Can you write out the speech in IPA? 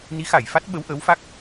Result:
n i˨˦ x a˧˩ j f a˦˥ t̚ ɓ ə˨˦ w ʔ əː˨˦ w f a˦˥ k̚

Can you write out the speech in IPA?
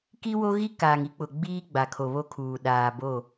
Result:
k i˦ w o˦ ɣ i˦ k aː˨ ŋ i˦ k͡p ʊ˨ ɡ͡b iː˦ ɡ͡b a˨ kʰ o˨ β o˦ kʰ uː˨ ɗ aː˨ b o˦˨

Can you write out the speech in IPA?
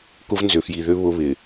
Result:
k ʊ˦ v n z ʏ˨ f j i˨ ð ʏ˦ β ʊ˦ β ɪ˨

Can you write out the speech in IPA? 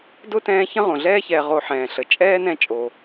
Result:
d ʊ˥ t ɛ̃ː˦ ç ə̃˦ ʁ õ˩ ɮ ɛː˦ ç ɛː˨ ʁ o˨ ħ ɛ̃ː˩ ɬ ə˩ t͡ʃʼ ɛː˥ n ɛ̃˦ t͡ʃʼ o˩

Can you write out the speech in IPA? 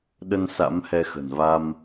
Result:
ɗ ə˧ n s a̰˧˥ m h ɛ˧ x ə̤˨˩ n v a˧ m

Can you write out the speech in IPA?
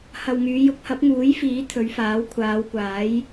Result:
h ɐ˨ w ŋ yː˨˧ j ʊ˧ k̚ h ɐ˨˥ p̚ ŋ uː˨˥ j f iː˨˥ t̪ʰ ɵ˨˧ ɥ f aː˨˥ w kʷʰ aː˨˧ w kʷ aː˨˥ j

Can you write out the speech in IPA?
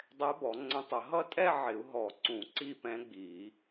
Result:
dˤ ɛ˧˥ b ɔ˨˩˦ ŋ͡ǀ ə̃˧˥ tˤ ə˨˩˦ ɦ ʌ˥˧ tʼ ɛ˥˧ ʕ ɪ˨˩˦ u̯ ɦ ɔ˨˩ ǀ ũ˨˩˦ ǀ i˥˧ p ɛ̃˧˥ ɡ͡b i˨˩˦

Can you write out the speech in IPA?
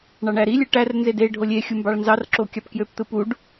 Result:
ɳ ɑ ɳ æ ɾ i lʲ ɯ ʈ æ r n z e d e ɖʱ o lʲ e xʲ u m b ɑ ɭ n z ɑ r ǁ o kʲ ɑ p k j ø p t̪ ɯ p u ɖ

